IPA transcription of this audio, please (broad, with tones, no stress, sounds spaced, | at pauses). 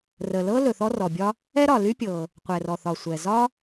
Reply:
r ə˩ l ɤ˥ l ɵ˩ θ ɔ˥ r ɔ˩ bʲ ɒ˥ | ɛ˥ ɾ ɒ˩ l y˥ pʲ ɤ˩ | qʷ ɛ˩ r ɔ˩ θ ɒ˩ sʷ ɛ˩ z ɒ˥